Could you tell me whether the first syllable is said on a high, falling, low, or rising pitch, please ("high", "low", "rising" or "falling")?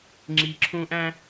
low